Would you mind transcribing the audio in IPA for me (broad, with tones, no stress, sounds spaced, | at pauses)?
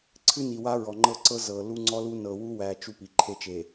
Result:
ǀʰ ɨ˦ n i˨ w a˦ ɹ ɔ˨ ŋ͡ǃ ɤ˦ ǀ ɤ˦ z ɤ˨ l u˦ ŋ͡ǀ ɔ˦ l u˦ n ɤ˨ w u˦ w æ˨ t͡ʃ u˦ p i˨ ǃʰ e˦ t͡ʃ e˨